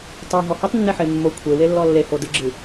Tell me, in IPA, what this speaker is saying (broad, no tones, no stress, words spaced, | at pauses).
tˤaɦɔ hetˤnːeħe mːo kʷʰewelːɔ lːeho dɨɡ͡ǁɨ